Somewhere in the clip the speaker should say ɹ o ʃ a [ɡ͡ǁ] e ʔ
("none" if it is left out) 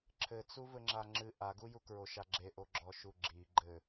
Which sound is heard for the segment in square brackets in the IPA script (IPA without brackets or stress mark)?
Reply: ɡ͡ǁ